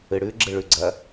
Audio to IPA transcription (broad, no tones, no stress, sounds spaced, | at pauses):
ɨ ɽ ʉ ɡ͡ǁ ɨ ɭ ʉ ɡ͡ǀ ɐ